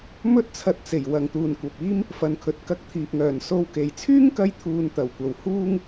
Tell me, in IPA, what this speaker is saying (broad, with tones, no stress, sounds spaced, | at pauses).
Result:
m ɵ˥ t̚ t͡sʰ ɐ˧ t̚ t͡s e˨˩ j w ɐ˨ ŋ t̪ uː˨ n kʷ ɐ˨ p̚ iː˥ m | f ɐ˨ n kʰ ɵ˨ t̚ k ɐ˧ k̚ t̪ʰ iː˨ p̚ ŋ œː˨˩ n s o˧ w k e˨ j t͡sʰ yː˥ ŋ k ɐ˧ j t̪ʰ uː˨ n t̪ ɐ˨˩ w kʷ ɐ˨ w h uː˥ ŋ